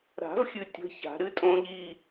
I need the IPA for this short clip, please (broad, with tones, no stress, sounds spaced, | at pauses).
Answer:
ɾ a̤˨˩˦ v xʲ ɨ˨ tʲ ə̤˧˥˧ ç a̤˨˩˦ ɾ ɨ˦˥ tʼ õ˦˥ ʎ i˧˥˧